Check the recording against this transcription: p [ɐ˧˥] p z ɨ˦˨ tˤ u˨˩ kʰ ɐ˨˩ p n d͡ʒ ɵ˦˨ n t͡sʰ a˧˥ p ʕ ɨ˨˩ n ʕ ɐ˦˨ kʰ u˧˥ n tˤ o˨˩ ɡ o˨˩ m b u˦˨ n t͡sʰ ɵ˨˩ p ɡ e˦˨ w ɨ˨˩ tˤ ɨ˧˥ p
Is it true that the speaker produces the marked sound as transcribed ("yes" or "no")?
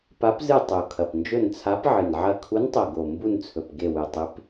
no